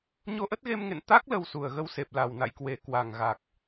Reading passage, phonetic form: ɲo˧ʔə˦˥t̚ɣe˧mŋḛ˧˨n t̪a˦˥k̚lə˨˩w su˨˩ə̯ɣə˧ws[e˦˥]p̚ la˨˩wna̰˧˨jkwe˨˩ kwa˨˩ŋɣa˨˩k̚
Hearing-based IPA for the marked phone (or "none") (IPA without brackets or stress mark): e˨˩